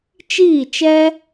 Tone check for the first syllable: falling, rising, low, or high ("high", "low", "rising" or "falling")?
falling